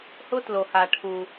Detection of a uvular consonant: absent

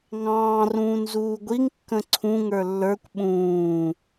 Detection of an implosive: present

